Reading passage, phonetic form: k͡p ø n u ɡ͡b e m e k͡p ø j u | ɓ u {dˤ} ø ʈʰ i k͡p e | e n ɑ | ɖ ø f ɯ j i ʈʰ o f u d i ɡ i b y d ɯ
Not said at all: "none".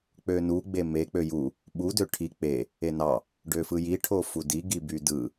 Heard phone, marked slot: d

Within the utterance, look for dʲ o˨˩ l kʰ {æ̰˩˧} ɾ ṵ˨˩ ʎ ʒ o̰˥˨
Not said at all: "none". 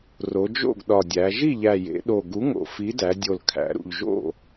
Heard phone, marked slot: æ̰˩˧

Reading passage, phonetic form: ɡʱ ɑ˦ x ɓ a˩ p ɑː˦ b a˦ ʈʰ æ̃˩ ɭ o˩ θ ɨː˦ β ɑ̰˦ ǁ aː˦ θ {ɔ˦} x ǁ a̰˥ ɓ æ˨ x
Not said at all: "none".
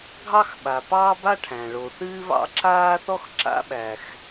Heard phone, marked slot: ɔ˥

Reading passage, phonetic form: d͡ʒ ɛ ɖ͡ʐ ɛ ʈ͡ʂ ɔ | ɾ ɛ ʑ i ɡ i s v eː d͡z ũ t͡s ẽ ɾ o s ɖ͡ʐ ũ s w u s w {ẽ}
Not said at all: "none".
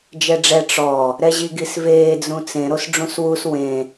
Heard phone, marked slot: ẽ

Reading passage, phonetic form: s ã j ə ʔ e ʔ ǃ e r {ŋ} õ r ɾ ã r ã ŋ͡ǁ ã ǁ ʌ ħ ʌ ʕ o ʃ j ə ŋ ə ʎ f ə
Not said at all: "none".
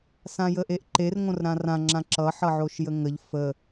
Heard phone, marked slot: ŋ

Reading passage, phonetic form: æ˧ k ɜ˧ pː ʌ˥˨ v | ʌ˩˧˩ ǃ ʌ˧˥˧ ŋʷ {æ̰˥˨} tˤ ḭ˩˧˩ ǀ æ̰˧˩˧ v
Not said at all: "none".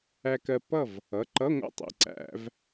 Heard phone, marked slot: æ̰˥˨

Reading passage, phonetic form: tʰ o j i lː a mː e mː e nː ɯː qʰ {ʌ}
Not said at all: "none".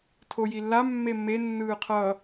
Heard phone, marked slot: ʌ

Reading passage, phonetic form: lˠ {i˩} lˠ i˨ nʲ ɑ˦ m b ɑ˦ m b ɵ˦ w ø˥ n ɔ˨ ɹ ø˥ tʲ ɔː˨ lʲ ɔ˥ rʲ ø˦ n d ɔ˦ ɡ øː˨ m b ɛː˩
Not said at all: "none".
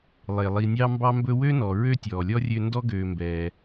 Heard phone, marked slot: e˩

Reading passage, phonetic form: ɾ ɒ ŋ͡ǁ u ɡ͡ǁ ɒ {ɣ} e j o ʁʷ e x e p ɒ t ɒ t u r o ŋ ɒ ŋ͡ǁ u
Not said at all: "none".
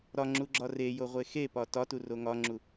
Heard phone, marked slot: r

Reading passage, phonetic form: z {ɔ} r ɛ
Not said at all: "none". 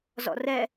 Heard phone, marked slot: ɔ̰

